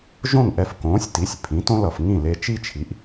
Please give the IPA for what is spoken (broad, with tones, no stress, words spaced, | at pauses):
ʒõ˥˩ŋʔɛ˧f kõː˩˥sʲti˩˥sʲ pʰĩ˩˥tõ˥lʌ˩f ŋĩ˥˩ le˧ t͡ʃi˥t͡ʃʰi˩˥ʔ